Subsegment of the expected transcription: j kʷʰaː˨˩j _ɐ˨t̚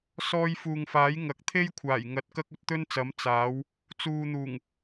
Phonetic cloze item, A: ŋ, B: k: A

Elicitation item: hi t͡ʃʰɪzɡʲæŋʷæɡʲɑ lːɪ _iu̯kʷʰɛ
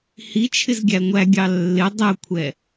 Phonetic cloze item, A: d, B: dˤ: B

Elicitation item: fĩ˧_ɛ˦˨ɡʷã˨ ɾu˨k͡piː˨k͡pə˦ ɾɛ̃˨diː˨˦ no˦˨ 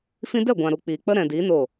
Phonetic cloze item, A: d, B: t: A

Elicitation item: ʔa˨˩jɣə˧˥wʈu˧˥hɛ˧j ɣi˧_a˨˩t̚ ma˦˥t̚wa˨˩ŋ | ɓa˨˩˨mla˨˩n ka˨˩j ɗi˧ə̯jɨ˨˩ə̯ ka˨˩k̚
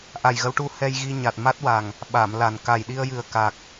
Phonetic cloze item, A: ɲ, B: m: A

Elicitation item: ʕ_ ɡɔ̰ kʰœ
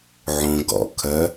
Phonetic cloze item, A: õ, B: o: A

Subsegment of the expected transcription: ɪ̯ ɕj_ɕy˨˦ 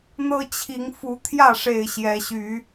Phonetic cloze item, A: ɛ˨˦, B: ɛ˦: A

